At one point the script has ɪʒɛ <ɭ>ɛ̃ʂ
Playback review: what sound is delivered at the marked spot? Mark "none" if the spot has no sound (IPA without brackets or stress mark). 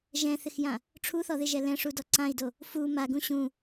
l